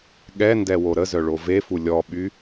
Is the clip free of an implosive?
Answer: no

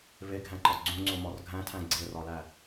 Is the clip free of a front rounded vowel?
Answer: yes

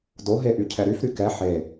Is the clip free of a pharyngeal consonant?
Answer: no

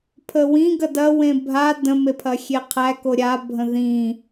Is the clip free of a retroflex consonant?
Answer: yes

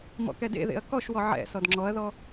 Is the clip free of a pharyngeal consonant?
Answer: no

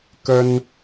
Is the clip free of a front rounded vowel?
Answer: yes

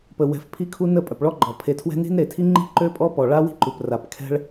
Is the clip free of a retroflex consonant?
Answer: no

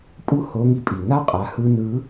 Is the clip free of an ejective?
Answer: no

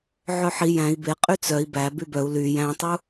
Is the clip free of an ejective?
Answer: no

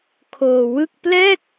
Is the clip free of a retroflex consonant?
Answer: yes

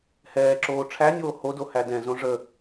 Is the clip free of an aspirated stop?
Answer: no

